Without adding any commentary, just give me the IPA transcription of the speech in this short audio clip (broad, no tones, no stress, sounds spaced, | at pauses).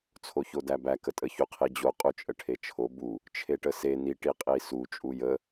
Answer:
t͡sʰ o ç o d æ b æ k ə tʼ ə ç u qʰ i d͡ʑ o qʼ u t͡ʃʼ ə ʈʰ e t͡ʃʰ o b u | t͡ʃʰ e ʈ ə s e n i ʈ i qʼ i s u t͡ʃʼ u j ə